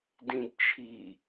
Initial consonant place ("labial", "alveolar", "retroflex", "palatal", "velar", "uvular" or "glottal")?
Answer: alveolar